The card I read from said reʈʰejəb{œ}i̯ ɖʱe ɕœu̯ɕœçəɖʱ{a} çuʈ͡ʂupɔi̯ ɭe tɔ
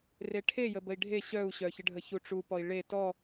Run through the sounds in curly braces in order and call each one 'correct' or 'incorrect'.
incorrect: ə, incorrect: ə

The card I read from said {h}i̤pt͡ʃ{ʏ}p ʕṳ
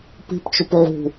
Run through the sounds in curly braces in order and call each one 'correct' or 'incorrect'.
incorrect: p, correct

